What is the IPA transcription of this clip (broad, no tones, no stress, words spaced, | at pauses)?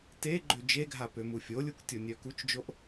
te ɡ͡ǃød͡ʒeɡʱapø mufʲolʲuk tʲonʲœkut͡ʃd͡ʒoʔ